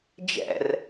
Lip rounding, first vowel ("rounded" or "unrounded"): unrounded